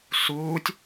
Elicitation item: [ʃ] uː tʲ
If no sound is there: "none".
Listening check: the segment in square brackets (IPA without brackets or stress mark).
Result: s